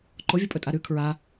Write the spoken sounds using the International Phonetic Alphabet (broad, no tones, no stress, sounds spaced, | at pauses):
ǃ o vʲ o pʼ ɵ tʼ a ɾ ʉ kʰ ɹ a